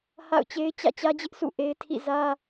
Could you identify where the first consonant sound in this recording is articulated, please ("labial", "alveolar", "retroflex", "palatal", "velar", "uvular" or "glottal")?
glottal